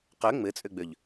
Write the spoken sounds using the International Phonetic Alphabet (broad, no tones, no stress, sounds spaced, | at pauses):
q ø ŋ͡m ɘ t͡sʼ ø ɡ͡b ø ʎ